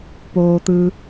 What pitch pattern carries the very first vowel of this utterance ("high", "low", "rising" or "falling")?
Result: low